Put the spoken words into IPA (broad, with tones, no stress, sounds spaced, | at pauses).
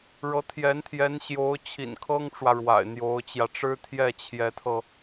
ɻ ɤ˧˥ t̪ʰ j ɛ˧˥ n t̪ʰ j ɛ˧˥ n ɕ j o˧˥ ʊ̯ t͡ɕʰ ḭ˨˩ n kʰ ɤ˥ ŋ ʈ͡ʂ w ä˨ ɻ w a̰˨˩ ɪ̯ n̪ j o˧˥ ʊ̯ t͡ɕ j ä˧ ʈ͡ʂ ɻ̩˥ t̪ʰ j ɛ˥˩ t͡ɕʰ j ɛ˧˥ t̪ʰ ɤ˧